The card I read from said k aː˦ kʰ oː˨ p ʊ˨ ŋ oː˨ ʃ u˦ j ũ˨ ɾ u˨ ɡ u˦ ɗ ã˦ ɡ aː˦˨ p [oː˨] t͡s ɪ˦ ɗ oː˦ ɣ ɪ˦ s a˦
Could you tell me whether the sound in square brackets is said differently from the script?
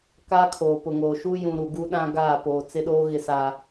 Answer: no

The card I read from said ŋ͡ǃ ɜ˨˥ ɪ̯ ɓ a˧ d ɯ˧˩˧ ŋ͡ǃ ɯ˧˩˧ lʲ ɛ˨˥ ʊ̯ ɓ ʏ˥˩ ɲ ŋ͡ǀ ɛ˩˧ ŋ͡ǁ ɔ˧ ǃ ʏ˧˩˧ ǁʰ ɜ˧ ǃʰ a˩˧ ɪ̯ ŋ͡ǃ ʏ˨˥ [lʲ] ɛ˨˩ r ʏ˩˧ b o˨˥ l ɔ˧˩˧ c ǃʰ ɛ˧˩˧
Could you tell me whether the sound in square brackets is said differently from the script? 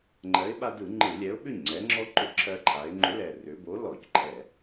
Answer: yes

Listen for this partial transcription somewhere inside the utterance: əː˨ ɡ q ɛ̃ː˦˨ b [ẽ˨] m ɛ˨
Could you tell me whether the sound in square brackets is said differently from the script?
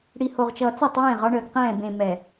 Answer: no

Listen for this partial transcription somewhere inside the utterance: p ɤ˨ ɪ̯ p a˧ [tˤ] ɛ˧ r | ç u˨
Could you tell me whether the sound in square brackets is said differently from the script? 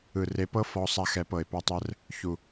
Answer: no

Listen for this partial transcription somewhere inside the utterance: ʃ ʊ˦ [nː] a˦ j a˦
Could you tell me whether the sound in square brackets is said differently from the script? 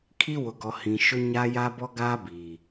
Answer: yes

